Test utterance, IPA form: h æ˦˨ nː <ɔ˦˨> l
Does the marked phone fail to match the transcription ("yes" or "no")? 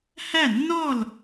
no